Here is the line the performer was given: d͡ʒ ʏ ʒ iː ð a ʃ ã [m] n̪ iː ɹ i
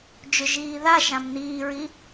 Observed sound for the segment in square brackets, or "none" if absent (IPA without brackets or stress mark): m